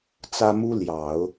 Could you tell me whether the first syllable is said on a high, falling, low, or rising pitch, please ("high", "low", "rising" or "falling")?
high